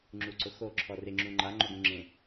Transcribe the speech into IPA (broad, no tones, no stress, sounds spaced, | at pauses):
ŋ͡ǁ u ǀ ʊ x o ǁʰ ɔ r ɪ ŋ͡ǁ ũ ŋ͡ǃ a ŋ͡ǃ o ɡ ũ ŋ͡ǁ ẽ